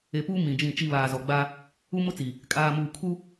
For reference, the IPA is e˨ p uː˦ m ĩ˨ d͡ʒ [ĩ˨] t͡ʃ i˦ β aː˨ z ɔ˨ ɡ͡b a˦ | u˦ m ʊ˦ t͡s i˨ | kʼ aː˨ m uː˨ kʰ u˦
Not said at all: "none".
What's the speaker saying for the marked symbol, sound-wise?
ĩ˦˨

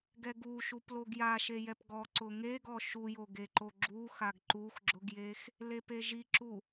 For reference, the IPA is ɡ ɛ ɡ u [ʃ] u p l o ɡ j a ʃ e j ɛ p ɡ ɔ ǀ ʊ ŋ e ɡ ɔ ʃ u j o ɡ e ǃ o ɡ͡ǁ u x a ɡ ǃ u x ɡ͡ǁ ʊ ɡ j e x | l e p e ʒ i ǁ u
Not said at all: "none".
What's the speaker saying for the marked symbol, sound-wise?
ʃ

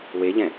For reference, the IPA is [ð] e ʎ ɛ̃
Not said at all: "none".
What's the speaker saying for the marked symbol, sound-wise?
w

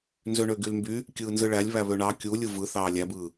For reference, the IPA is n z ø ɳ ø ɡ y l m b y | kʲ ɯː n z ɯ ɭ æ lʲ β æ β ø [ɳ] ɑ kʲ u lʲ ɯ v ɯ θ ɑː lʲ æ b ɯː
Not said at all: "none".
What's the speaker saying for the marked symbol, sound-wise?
ɳ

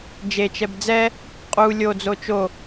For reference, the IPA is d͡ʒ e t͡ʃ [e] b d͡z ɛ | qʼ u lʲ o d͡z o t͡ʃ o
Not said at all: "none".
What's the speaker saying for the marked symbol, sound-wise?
ɛ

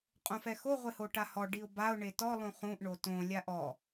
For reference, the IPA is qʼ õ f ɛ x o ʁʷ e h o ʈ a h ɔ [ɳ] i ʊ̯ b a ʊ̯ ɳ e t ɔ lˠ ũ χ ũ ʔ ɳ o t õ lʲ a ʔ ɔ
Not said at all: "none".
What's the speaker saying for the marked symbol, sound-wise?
ɖ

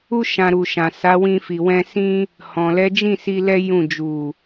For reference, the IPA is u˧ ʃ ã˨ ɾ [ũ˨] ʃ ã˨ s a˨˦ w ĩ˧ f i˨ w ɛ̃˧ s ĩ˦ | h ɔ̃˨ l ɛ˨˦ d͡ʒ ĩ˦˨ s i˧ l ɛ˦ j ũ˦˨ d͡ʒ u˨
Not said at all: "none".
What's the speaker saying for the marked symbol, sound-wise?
u˨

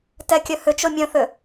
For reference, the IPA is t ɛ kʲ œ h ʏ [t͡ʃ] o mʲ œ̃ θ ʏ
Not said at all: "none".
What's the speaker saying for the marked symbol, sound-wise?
t͡ʃ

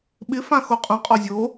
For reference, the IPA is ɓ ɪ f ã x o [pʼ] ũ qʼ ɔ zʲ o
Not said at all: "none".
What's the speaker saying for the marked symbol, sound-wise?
qʼ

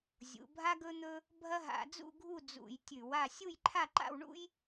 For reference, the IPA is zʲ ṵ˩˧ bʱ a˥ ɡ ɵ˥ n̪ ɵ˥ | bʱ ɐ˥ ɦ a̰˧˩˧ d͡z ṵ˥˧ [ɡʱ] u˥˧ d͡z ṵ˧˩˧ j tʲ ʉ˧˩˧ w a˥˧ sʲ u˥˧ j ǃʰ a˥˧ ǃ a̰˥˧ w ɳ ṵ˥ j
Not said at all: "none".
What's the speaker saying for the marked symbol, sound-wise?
ɡʱ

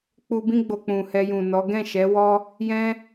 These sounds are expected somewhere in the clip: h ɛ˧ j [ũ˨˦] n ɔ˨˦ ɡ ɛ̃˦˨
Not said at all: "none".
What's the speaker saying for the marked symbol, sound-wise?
ũ˨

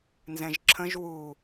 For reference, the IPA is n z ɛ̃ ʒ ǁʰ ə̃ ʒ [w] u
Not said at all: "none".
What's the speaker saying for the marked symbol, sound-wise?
w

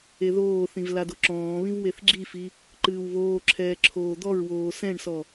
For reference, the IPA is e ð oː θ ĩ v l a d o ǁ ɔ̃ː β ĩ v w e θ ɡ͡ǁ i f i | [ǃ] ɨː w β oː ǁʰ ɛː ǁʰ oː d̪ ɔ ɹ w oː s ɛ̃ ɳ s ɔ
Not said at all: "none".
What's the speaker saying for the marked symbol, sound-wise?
ǃ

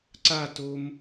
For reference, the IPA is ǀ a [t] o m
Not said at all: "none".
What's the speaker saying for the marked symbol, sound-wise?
t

